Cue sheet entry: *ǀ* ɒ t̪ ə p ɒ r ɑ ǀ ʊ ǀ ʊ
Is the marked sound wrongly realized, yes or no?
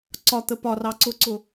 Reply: no